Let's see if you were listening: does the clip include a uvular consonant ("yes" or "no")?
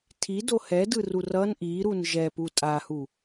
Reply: no